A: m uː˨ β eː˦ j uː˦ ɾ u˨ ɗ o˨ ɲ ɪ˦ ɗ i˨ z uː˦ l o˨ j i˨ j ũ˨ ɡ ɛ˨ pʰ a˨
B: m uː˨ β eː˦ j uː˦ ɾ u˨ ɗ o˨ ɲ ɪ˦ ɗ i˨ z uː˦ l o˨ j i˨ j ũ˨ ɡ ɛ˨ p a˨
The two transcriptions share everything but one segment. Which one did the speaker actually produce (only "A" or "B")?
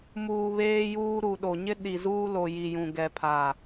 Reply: A